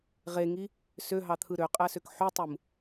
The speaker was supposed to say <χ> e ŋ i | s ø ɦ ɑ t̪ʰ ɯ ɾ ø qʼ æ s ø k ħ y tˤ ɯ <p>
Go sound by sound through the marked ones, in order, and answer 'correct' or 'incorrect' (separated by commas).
incorrect, incorrect